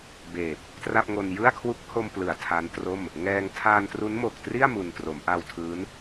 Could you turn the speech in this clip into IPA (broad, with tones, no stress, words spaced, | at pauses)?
beː˨˩p̚ | tra˥˩p̚ŋo˧n jɯ˥˩a̯kʰwu˦˥k̚ ho˧mplɯ˩˦a̯ tʰa˦˥ntro˥˩m | ŋɛː˧ŋ tʰaː˧ntru˦˥nmo˨˩k̚tri˥˩a̯ mu˧n tro˩˦mʔa˧w tʰɯː˦˥n